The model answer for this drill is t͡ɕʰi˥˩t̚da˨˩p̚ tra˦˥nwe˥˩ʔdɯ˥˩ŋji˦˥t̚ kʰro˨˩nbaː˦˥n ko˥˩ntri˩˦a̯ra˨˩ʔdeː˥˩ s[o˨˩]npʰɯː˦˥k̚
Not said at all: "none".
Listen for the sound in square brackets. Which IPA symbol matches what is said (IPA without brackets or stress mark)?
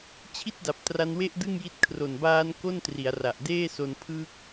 o˧